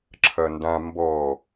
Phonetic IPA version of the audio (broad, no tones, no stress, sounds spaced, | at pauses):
ǁʰ ɐ n d ã m b ɔ